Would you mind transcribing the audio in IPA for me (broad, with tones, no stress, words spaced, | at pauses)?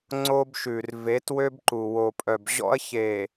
ŋ͡ǀo˦bʃʉ˨r ve˨˦twø˦bǃu˨ wo˨pʼœ˨bʑɔ̰˦ɐ̯ çe˨